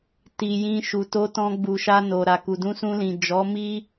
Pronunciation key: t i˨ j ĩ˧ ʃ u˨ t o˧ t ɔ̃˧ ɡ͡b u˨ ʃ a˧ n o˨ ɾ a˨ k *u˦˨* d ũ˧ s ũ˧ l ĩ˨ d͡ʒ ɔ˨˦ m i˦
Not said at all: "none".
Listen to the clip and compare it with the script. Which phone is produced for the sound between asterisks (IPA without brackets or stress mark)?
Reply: u˨